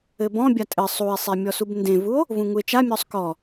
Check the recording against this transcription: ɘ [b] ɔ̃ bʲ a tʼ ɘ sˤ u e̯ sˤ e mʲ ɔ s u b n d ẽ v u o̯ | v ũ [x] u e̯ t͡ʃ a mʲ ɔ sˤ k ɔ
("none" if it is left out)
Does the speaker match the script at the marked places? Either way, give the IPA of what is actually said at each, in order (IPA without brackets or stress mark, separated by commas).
b, ŋ